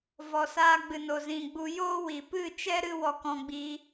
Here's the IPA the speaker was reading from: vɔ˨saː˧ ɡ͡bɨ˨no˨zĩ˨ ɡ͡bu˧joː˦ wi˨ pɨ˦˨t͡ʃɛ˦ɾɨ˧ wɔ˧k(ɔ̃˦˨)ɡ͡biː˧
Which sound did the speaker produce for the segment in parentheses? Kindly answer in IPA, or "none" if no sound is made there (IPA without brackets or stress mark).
ɔ̃˧